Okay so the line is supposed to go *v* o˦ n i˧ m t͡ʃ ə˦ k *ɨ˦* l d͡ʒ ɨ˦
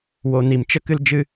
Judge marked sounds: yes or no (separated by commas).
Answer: no, yes